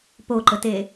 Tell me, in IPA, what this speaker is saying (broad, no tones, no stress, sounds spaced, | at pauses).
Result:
p o ǃ ə t e